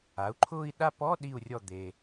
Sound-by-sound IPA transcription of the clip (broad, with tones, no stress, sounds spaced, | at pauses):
a˩˥ u̯ ǃʰ ʊː˥˧ i̯ ɗ a˥˧ p ɔ˧˥˧ ɗ i˥˩ u̯ rʲ ɔ˥˩ d̪ e˨